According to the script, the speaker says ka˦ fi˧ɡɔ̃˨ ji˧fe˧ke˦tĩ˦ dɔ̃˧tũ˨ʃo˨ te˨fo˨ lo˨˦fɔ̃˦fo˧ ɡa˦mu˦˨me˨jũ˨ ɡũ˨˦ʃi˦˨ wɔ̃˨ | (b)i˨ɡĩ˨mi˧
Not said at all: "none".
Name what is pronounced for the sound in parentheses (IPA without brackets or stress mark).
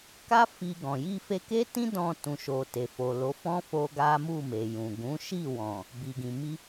b